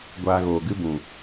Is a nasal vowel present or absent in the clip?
present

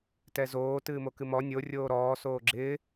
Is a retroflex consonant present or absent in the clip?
absent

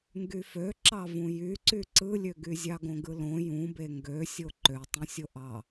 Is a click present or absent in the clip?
present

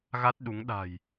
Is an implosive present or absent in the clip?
present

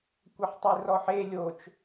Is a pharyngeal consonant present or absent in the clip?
present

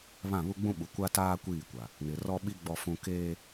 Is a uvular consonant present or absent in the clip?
absent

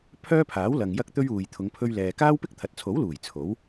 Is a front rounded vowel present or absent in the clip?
present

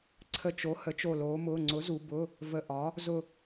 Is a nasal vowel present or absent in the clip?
absent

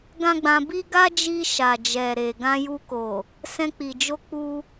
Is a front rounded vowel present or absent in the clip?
absent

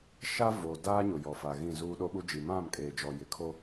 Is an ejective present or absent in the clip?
present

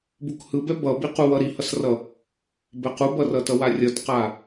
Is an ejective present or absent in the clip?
absent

